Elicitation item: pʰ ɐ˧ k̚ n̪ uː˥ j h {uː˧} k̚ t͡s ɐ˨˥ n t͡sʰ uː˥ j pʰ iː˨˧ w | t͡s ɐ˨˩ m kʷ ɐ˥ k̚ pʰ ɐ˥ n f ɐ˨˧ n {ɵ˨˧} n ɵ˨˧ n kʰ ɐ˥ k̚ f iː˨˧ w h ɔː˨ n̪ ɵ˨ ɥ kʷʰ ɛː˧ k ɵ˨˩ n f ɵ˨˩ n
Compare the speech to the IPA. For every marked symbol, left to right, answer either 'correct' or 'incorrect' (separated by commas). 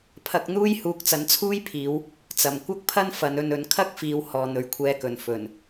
correct, incorrect